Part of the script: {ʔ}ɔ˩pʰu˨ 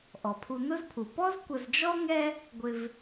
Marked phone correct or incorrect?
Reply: correct